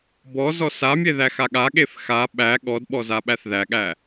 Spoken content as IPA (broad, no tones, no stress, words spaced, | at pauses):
bɔ zɔsamʲe ðæxaɠaɠef xa ɓæ ɠɔdɓɔ zaɓæθðæɠæ